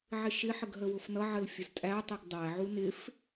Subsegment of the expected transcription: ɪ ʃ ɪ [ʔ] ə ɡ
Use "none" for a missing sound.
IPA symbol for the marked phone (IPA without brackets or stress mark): ħ